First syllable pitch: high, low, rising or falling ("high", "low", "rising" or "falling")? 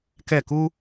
falling